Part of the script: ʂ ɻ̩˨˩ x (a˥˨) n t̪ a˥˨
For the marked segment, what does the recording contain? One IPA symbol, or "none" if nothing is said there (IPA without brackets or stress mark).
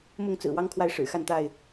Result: a˥˨